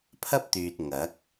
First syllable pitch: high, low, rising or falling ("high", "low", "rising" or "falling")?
high